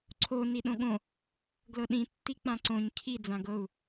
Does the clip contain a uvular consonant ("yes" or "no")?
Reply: no